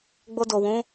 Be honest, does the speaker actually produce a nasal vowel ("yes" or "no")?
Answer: yes